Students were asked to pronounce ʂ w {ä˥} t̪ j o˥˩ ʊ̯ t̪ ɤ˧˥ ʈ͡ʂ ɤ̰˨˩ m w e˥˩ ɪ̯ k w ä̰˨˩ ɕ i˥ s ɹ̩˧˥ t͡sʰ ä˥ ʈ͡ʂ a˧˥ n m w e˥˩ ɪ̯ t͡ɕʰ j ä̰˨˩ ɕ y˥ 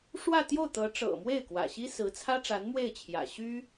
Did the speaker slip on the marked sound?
yes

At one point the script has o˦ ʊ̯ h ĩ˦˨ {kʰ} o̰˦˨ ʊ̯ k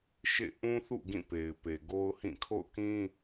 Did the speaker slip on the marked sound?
no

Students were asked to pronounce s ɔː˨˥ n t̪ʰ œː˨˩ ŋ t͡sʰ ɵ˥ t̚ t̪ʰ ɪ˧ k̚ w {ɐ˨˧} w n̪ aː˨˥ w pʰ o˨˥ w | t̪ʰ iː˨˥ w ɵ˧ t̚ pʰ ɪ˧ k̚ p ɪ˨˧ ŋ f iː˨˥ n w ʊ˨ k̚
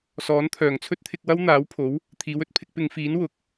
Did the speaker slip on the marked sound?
yes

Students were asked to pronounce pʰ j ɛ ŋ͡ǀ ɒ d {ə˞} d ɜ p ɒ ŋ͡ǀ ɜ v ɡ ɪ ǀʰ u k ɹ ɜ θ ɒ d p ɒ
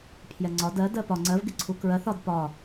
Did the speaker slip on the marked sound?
yes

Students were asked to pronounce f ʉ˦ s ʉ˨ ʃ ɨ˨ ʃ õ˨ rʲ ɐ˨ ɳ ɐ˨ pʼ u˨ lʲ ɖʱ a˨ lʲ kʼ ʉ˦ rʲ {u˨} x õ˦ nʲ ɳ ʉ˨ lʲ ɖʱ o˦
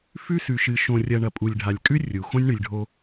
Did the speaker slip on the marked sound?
no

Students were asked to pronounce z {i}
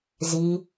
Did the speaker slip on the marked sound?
no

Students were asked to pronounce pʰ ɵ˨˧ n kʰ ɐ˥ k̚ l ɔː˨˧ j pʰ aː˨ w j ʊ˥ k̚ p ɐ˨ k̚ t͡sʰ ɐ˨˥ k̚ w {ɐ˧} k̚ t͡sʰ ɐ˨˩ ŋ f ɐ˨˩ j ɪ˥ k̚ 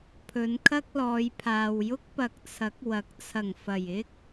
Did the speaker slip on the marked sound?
yes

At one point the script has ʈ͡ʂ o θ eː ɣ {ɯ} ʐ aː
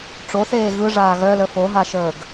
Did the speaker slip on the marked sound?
no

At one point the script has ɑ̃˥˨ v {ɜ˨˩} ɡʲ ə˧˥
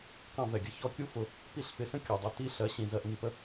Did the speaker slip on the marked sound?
yes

